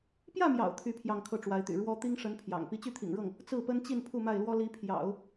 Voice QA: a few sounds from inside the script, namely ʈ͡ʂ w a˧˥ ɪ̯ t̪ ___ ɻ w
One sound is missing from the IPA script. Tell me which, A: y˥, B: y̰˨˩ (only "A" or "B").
B